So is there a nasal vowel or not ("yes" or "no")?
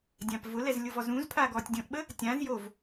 yes